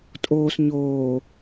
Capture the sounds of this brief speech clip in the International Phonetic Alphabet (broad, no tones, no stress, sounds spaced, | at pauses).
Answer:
tʼ oː s ɲ oː